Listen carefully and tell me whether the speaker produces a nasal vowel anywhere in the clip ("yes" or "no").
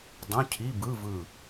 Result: yes